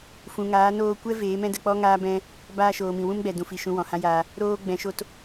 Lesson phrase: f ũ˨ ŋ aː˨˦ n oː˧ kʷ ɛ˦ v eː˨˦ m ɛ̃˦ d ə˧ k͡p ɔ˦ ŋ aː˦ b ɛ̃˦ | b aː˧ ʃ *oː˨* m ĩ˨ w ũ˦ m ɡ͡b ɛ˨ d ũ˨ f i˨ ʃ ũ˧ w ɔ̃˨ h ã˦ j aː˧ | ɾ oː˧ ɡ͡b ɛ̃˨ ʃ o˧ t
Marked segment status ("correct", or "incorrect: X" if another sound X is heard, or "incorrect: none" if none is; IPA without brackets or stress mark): correct